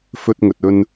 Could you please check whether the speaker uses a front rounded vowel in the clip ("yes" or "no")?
no